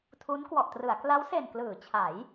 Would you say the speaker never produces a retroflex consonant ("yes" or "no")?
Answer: yes